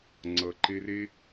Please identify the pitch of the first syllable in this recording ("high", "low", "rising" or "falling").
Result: low